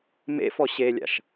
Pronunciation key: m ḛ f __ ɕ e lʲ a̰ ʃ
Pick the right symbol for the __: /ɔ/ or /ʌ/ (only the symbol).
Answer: ɔ